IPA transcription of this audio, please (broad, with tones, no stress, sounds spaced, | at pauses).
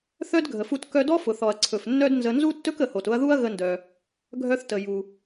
θ œ˥ d ɡʱ ə˩ f u˧ t k œ˧ d ɔ˥ f ʊ˩ θ ɔ˩ ɐ̯ ǀʰ ɵ˩ f nː œ˥ d n z ə˧ n z u˥ tː ɵ˥ k ə˩ h o˩ t ʊ˧ ɐ̯ ð u˥ ɐ̯ ɣ ə˧ n d œ˩ | ɡʱ œ˧ θ t ə˩ j u˩